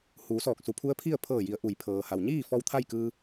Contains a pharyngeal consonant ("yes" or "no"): no